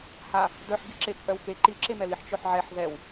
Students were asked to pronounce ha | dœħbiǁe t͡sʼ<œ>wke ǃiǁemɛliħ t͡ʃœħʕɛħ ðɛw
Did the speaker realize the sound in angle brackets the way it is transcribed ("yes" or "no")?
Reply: yes